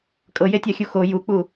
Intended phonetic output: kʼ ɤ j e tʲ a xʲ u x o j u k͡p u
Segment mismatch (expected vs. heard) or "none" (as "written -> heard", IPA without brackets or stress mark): none